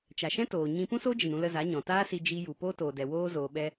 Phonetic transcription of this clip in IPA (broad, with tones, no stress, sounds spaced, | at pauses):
t͡ʃ a˨ ʃ ɛ̃˦ t oː˨ ɲ ĩ˧ p ũ˦ s o˦ d͡ʒ ə˨ n ũ˧ l ə˧ z a˨˦ ɲ ɔ̃˨ t aː˦ s i˧ d͡ʒ i˧ j u˨ p o˦ t oː˨ d ɛ˨ w oː˦ z oː˧ ɓ ɛ˦